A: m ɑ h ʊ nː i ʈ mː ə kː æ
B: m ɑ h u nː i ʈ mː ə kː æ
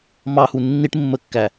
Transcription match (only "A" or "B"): B